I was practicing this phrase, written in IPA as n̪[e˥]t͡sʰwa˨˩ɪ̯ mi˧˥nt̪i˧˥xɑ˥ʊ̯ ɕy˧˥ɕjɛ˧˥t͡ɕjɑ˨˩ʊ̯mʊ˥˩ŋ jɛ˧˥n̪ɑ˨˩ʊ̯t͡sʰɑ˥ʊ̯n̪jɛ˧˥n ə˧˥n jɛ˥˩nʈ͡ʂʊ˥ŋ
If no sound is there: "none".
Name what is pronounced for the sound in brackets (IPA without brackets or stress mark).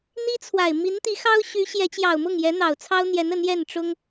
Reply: i˥